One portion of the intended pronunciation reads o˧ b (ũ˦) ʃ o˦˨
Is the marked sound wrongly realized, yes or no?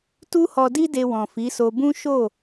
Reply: no